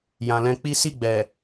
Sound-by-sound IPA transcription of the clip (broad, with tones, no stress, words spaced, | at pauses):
jã˨lɛ̃˧k͡pi˦ si˦˨ɡ͡bɛ˨